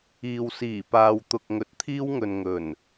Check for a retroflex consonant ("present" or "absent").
absent